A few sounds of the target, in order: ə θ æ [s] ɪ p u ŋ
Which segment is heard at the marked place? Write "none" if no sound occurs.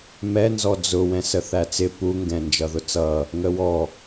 t͡s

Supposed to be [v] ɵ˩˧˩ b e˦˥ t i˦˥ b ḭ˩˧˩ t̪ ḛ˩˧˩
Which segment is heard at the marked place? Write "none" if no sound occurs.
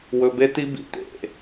w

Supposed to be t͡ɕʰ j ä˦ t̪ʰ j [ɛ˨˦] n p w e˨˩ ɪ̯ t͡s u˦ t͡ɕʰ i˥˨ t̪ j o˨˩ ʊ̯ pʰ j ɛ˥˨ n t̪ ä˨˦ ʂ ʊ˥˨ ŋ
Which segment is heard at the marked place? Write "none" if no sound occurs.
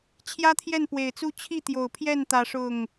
ɛ˥˨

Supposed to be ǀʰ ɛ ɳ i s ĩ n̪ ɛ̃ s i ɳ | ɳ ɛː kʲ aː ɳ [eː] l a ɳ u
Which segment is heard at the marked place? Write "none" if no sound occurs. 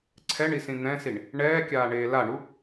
eː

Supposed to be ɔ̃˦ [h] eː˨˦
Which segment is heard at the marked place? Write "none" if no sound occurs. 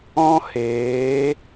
h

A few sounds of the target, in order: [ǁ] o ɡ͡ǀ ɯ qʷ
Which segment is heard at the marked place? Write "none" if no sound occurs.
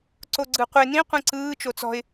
ǀ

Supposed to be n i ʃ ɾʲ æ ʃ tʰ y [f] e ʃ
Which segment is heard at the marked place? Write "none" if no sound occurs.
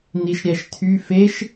f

